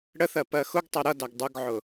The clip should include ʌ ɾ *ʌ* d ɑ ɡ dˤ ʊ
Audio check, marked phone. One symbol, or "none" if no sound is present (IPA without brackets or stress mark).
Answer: ʌ